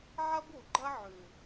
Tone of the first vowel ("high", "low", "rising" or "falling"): high